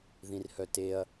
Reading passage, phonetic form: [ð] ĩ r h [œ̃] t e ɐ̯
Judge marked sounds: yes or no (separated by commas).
yes, no